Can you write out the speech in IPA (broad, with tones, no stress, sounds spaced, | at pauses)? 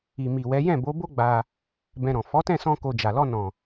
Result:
i˨ m i˨ w ɛ˨˦ j ɛ̃˦˨ b o˨˦ b o˦ ɡ͡b a˧ | b ɛ̃˧ ɾ ɔ̃˨ f ɔ˨˦ t ɛ̃˦˨ s ɔ̃˧ k o˧ d͡ʒ a˨ l ɔ˧ n ɔ̃˨